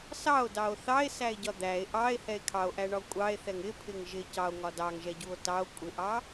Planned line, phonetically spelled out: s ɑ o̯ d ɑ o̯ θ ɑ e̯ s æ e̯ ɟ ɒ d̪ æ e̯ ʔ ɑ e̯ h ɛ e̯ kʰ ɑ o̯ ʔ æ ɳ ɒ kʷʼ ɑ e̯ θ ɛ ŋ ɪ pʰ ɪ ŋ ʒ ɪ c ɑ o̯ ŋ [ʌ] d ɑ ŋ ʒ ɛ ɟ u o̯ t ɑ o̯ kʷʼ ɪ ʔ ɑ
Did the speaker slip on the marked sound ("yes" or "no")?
yes